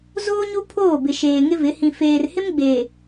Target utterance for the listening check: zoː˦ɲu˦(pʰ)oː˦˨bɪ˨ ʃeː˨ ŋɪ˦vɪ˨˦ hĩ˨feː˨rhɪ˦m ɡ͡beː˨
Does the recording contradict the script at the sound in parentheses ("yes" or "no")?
no